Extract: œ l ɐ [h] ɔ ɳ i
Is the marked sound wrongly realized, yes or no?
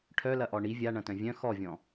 yes